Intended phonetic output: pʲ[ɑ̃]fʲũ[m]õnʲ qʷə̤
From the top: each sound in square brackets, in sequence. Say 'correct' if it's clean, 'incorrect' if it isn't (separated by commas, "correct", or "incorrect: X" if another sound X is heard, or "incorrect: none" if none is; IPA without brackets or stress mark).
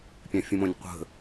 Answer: correct, correct